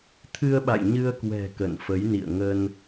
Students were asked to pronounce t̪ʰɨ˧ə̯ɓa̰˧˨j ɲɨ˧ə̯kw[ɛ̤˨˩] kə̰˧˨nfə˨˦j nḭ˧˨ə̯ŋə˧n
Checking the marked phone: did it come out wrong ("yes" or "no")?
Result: no